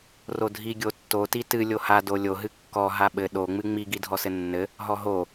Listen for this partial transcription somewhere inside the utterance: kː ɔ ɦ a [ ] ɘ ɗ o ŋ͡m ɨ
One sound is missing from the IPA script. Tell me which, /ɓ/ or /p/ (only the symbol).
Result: ɓ